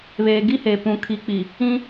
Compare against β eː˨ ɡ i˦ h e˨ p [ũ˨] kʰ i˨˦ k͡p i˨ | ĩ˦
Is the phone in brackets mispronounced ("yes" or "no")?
no